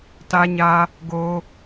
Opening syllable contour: high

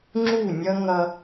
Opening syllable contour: falling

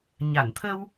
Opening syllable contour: low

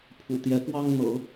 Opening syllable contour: low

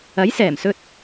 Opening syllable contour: rising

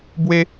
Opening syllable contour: high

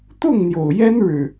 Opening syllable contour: falling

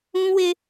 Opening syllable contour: high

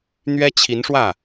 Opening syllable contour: high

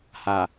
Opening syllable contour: low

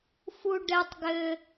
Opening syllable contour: high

